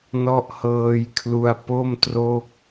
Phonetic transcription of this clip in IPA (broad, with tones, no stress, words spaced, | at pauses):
nɔ˦˥ʔhɤː˧jkʰlu˧a̯ po˥˩mtro˥˩k̚